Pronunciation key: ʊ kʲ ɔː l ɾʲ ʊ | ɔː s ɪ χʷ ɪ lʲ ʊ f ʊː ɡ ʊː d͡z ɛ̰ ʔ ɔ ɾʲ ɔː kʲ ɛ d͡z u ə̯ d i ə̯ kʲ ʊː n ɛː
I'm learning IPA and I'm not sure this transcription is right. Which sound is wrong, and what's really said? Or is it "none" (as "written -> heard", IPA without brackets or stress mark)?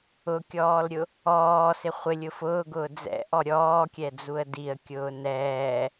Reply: none